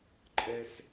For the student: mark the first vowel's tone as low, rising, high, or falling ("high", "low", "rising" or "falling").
high